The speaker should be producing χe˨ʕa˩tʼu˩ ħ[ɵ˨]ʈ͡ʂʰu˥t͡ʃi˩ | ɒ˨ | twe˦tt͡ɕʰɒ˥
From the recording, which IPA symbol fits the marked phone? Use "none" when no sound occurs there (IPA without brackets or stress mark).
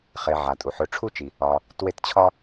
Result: ɵ˨